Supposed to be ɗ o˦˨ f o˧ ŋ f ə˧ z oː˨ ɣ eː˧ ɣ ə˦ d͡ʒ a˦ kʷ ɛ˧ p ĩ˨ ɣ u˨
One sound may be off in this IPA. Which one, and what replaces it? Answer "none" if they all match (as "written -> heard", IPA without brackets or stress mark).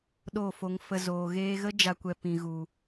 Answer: none